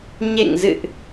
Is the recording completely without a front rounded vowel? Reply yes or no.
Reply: yes